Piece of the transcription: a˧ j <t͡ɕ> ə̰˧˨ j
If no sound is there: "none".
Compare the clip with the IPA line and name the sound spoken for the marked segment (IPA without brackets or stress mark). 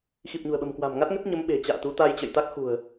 t͡ɕ